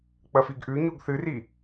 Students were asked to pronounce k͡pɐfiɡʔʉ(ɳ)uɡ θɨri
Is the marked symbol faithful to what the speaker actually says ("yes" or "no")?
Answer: no